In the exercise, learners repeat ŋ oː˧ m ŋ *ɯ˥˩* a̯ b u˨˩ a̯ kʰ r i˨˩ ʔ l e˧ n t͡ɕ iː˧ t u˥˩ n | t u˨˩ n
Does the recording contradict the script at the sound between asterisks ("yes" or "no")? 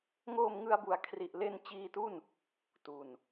yes